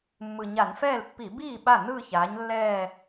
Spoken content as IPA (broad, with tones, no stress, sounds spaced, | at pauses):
mː ɯ˨˩ ɲ a˧˩˧ n f ɛː˥˩ l pː i˧˩˧ b iː˥˩ ɓ a˥˩ n ɯː˥˧ ç aː˨˥ ɲ lː ɛː˥˧